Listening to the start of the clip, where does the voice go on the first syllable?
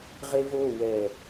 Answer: high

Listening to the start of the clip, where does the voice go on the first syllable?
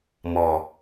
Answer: low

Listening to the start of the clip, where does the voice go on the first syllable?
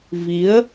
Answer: rising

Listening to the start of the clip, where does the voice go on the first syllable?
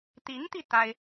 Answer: rising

